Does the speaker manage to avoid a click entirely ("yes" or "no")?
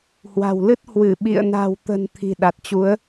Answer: yes